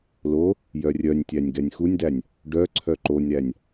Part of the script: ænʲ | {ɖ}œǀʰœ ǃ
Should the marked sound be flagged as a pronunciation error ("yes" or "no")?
no